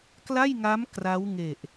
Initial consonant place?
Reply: velar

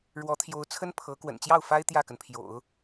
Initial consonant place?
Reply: retroflex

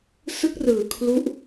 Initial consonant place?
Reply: alveolar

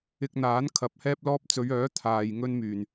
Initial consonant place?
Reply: velar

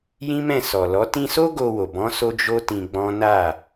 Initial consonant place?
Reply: palatal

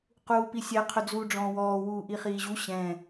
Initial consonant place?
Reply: uvular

